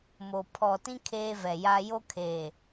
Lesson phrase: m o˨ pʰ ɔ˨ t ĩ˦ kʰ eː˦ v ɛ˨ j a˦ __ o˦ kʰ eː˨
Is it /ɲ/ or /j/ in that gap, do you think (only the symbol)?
j